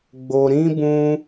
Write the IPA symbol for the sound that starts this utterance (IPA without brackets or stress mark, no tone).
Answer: ɡ͡b